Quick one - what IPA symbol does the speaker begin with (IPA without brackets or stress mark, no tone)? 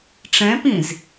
ʈ͡ʂ